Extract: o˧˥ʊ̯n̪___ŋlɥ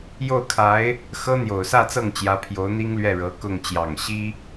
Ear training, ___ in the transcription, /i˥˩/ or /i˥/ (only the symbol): i˥